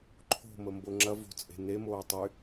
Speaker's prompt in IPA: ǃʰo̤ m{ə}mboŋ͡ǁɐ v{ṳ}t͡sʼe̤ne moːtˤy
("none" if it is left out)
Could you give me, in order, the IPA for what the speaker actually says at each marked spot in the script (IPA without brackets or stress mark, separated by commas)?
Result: ə, o̤